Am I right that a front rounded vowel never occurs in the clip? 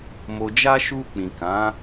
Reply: yes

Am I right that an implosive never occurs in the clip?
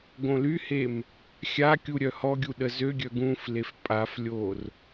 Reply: no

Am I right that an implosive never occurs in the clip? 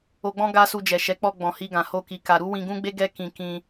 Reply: yes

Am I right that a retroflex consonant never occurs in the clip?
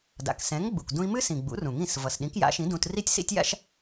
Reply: yes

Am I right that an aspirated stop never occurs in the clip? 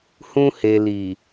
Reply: yes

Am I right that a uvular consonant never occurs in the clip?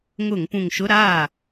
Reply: yes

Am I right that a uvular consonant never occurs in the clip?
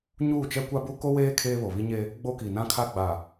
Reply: yes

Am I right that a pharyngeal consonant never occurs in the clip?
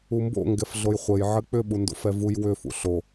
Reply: no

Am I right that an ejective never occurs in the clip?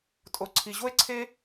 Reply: no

